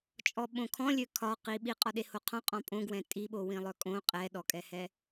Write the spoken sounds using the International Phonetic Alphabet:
t͡ʃʼ ɔ ɓ õ kʰ ɔ̃ lʲ ø kʰ ɒ q i ɓ i qʼ ɒ ɗ e h o qʰ ɔ̃ qʼ ɔ̃ pʼ õ ɡ w ɛ̃ tʼ i ɓ o w ĩ lˠ œ kʼ õ qʼ ɛ ɗ ɔ kʼ ɛ h ɛ

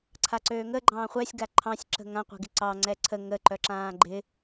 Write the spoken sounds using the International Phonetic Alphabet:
ǀʰ a ǀ øː ŋ ə ɡ͡ǃ ɑ̃ː χʷ ɛ sʲ ɡ a ǃʰ ɑ̃ sʲ ǁ ə̤ ŋ ã qʷ ɛ̤ ɡ ɪ ǀ ɑ ŋ͡ǀ ɛ ǀʰ ə ŋ ə ǃ œ ǁ ãː ɡ͡ǃ ɪ

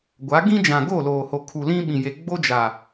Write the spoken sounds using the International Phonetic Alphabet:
ɡʷ a˨˦ ɡ ĩ˦ d͡ʒ ã˨ ɡ o˦˨ l oː˨ h o˨ kʰ u˨ l ĩ˦ ɓ ĩ˨ j e˨ ɡ͡b o˦ d͡ʒ a˨

